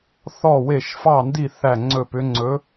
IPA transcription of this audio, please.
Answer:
θ ɔ˦˨ w e˦˨ ʃ f ɑ˦˨ n d i˦˨ θ æ˦˨ ŋ͡ǀ ɵ˦˨ p ʏ˧˥ ŋ͡ǀ ɵ˧˥

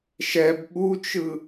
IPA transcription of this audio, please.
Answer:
ʃ ɛ b ɓ u t͡ʃ ɯ

